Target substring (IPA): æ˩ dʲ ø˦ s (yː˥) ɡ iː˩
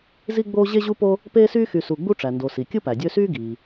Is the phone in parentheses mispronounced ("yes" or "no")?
no